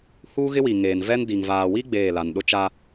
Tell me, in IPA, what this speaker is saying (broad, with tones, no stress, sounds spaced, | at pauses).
h uː˦ ɣ ɪ˦ w i˨ ŋ eː˨ n v ɛ˦ n d i˨ ŋ v aː˨ w i˦ ɡ͡b eː˦˨ l a˨ n ɗ ʊ˦ t͡ʃ a˦